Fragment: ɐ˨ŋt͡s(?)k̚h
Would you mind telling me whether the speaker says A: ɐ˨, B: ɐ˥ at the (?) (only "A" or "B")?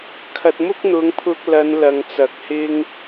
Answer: A